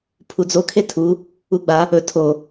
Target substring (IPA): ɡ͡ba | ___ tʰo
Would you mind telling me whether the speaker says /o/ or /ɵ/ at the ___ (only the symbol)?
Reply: ɵ